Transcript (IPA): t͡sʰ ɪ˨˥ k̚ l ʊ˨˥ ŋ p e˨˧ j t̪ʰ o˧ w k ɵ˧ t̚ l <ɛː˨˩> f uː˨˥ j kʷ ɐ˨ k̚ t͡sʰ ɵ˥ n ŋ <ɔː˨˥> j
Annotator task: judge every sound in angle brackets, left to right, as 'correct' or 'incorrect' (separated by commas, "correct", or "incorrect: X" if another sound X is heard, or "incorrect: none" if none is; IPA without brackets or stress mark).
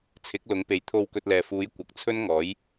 incorrect: ɛː˨, correct